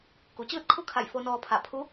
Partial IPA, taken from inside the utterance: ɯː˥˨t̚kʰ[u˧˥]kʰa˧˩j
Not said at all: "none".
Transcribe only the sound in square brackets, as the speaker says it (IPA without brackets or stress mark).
u˥˨